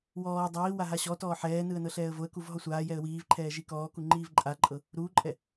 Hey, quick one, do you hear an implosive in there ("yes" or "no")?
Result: no